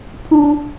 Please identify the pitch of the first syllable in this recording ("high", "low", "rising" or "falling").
high